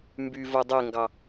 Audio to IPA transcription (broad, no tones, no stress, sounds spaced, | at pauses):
m b y v o dˤ e ŋ ɡ ɑ